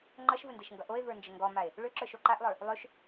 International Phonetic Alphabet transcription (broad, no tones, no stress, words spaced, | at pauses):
ŋ͡ǃʌʃvəndeʃŋɡʌ ʔoe̯və˞nd͡ʒə ŋɡɔmae̯ | ɭøǁə˞ʃo ǃaʔlˠə˞ | lˠøʃ